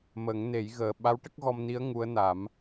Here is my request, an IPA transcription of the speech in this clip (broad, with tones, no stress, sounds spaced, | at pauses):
m ə˨˩˦ ŋ n e˨˩˦ j ɣ əː˨˩ ɓ a˧˥ w ʈ ə˦˥ k̚ ɣ ɔ˧ m n i˧˥ ə̯ ŋ u˧˥ ə̯ n a˨˩˦ m